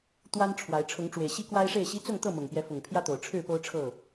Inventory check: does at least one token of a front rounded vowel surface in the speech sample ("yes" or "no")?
no